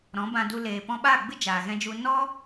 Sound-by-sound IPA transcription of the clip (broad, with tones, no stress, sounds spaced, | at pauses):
ɾ ɔ̃˨˦ b ã˧ d u˧ l eː˨ p ɔ̃˧ ɓ aː˦˨ ɡ͡b ɨ˦ d͡ʒ aː˨ ɣ ɛ̃˧ d͡ʒ u˧ n ɔ˦